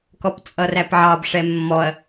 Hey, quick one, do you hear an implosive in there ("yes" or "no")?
no